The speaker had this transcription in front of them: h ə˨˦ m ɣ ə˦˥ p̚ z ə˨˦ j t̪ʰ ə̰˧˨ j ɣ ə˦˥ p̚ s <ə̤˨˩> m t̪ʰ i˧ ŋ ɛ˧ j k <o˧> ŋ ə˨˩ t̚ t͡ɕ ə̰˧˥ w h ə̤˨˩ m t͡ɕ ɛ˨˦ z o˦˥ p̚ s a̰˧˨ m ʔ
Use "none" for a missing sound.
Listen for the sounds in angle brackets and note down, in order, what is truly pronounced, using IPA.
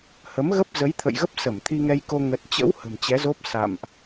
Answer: ə˧˩, o˧

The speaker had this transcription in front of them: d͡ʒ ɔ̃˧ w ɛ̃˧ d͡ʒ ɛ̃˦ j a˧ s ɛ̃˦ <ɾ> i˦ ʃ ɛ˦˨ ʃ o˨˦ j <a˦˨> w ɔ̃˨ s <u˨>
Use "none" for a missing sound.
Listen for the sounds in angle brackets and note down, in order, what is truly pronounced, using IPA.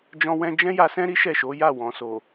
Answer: ɾ, a˦˨, o˨

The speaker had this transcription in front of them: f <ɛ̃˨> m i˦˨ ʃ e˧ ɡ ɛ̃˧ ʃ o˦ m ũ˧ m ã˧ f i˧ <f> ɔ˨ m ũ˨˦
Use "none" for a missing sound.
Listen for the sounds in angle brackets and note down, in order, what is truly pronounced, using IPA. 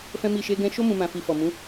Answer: ɛ̃˦, f

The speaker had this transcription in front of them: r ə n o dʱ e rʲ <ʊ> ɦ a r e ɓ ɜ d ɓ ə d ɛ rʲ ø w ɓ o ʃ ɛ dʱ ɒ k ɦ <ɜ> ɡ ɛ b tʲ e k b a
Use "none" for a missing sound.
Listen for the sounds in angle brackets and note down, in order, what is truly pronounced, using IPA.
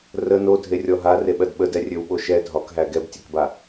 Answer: ɔ, æ

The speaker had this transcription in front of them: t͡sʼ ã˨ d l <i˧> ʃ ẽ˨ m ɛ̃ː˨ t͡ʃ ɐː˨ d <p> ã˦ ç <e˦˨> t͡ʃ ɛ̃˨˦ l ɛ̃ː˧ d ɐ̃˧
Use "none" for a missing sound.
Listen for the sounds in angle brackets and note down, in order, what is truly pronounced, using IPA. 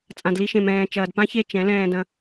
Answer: i˧, p, e˦˨

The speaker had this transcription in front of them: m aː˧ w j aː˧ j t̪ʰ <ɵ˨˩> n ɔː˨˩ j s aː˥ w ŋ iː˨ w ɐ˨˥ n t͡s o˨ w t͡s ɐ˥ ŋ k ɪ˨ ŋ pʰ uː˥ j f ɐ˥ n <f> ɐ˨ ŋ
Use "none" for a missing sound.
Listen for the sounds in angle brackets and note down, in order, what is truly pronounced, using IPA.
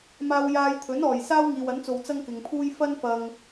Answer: ɵ˨˥, f

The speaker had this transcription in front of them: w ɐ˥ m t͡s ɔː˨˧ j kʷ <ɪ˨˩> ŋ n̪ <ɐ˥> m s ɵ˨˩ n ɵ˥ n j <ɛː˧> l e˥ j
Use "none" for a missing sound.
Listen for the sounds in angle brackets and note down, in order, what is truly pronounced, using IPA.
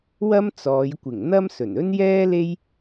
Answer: ɪ˨˩, ɐ˥, ɛː˥

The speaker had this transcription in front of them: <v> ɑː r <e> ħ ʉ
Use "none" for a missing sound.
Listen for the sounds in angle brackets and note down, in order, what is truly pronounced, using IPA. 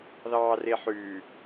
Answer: ð, e

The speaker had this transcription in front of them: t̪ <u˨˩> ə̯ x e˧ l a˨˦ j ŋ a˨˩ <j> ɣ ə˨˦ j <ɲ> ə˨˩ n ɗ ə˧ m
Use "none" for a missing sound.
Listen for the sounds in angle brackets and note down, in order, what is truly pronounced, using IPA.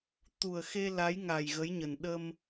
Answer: u˨˩, j, ɲ

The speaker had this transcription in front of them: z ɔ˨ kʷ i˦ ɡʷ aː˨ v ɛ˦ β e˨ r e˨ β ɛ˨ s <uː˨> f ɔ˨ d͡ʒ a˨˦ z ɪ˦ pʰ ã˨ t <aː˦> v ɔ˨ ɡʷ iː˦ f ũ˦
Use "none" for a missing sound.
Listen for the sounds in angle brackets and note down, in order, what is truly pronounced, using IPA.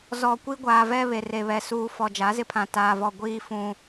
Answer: uː˨, aː˨

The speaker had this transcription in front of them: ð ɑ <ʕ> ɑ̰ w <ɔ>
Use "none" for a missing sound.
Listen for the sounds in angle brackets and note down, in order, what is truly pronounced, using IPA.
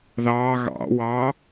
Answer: ɣ, ɑ

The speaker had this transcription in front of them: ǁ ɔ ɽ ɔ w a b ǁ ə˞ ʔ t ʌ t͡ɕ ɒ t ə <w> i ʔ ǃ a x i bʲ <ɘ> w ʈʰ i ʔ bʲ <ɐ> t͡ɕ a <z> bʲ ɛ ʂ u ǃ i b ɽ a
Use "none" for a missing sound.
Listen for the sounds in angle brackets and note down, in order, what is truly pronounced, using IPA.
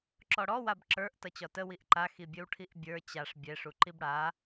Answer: w, ɘ, ə˞, ʂ

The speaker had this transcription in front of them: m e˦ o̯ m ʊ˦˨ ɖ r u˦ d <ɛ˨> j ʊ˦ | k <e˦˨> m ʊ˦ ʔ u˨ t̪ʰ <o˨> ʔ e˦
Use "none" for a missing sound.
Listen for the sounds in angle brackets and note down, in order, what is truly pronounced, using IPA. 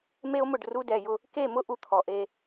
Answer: ɛ˨, e˦˨, ɔ˨

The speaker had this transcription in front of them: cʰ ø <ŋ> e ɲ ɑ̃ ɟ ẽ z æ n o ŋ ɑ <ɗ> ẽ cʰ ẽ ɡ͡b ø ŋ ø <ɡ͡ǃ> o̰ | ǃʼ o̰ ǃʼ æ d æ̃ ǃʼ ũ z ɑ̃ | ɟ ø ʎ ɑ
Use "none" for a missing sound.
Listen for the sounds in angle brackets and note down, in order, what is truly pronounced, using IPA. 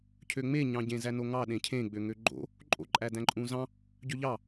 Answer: ŋ͡m, ɗ, ɡ͡ǃ

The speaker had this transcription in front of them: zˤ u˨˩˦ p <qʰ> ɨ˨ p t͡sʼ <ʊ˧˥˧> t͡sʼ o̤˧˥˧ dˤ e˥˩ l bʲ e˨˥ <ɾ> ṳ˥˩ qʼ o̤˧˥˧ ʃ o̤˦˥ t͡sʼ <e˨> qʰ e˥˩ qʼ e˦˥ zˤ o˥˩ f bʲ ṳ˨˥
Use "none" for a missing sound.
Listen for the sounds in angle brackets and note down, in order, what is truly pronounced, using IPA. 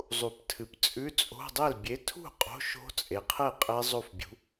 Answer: tʰ, ʉ˧˥˧, tʰ, e˨

